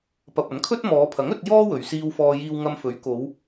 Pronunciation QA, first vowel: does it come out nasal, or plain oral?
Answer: oral